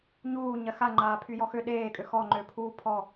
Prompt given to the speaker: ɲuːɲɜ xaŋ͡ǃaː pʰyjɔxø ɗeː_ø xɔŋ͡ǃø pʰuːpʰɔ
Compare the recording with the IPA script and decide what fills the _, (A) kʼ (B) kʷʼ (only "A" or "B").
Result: A